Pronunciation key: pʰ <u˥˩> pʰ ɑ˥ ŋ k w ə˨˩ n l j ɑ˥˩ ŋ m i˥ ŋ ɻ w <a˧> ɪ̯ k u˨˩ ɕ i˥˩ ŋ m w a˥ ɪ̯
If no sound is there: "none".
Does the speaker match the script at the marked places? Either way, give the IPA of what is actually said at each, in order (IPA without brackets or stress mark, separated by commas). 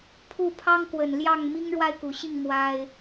u˥˩, a˥˩